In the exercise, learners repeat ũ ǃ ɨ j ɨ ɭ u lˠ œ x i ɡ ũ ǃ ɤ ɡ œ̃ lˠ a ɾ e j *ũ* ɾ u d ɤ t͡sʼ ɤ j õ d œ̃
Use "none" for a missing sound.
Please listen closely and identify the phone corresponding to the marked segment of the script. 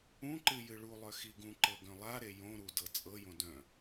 õ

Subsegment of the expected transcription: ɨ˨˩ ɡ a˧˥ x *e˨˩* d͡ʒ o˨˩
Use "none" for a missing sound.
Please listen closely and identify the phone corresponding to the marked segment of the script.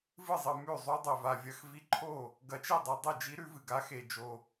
e˨˩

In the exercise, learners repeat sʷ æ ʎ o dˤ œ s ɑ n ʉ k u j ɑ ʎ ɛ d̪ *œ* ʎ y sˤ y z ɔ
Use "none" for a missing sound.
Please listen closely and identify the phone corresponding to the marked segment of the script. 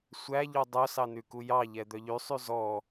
œ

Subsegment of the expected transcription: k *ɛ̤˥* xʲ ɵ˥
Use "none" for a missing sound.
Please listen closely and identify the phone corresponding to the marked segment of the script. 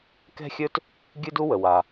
ɛ̤˥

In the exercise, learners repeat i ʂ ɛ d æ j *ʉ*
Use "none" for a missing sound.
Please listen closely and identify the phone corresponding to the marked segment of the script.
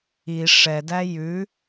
ʉ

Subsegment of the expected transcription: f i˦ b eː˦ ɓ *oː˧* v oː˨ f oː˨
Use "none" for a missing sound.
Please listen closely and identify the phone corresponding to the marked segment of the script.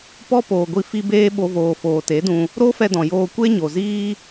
o˧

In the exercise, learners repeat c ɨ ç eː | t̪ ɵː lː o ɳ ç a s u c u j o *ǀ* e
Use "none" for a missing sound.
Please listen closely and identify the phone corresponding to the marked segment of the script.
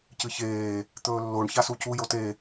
t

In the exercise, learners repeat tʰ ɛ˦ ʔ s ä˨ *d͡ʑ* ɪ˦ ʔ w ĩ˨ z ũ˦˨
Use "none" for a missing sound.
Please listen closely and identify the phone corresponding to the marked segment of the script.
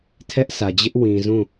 d͡ʑ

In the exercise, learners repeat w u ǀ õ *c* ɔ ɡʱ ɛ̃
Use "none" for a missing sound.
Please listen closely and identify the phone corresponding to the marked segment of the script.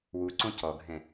c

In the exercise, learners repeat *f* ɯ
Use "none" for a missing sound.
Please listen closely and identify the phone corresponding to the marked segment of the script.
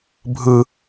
bʱ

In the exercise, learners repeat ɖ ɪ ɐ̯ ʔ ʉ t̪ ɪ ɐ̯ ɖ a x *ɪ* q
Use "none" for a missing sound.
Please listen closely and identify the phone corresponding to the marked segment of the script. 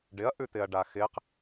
ɪ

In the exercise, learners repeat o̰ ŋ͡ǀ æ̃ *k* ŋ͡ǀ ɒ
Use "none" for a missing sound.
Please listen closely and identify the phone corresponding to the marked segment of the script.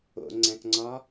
k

